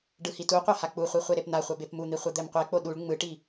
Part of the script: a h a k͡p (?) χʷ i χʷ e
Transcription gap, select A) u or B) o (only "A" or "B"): A